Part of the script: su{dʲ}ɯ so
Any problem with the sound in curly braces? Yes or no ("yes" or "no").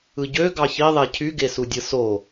no